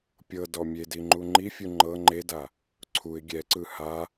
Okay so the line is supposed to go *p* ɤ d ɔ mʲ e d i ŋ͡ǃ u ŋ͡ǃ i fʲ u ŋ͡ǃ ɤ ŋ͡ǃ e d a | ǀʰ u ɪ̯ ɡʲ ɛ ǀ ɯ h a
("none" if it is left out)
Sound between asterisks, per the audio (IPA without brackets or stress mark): pʲ